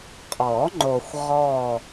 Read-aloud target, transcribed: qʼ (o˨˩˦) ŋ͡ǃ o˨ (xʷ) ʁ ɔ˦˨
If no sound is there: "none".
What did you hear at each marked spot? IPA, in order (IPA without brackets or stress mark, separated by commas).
ɔ˨˩˦, xʷ